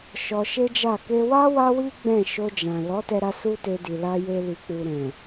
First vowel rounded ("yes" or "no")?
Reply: yes